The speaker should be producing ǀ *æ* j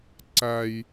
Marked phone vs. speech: correct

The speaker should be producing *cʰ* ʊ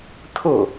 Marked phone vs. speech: incorrect: tʰ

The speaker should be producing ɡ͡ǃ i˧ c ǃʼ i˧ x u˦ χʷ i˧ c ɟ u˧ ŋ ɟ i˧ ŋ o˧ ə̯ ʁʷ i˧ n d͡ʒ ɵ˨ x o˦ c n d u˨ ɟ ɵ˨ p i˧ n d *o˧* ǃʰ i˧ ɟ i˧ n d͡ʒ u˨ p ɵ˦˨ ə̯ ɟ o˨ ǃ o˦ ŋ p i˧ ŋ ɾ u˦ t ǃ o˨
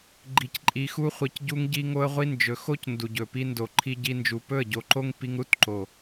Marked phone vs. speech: incorrect: o˨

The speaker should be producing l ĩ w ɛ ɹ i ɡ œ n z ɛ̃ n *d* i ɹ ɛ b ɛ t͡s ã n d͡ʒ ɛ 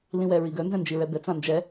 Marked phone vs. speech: incorrect: d͡ʒ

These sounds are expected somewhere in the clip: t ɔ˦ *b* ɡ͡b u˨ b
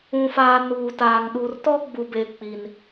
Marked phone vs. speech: incorrect: none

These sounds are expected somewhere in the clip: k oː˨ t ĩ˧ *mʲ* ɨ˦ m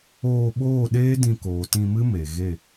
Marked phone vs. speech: incorrect: m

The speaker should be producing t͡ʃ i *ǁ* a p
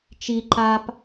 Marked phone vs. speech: incorrect: ǃ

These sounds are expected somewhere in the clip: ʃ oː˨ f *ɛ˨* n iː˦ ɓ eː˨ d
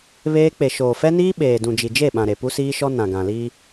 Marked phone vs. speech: incorrect: ɛ˦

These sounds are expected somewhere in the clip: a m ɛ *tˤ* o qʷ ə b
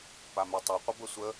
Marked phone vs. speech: correct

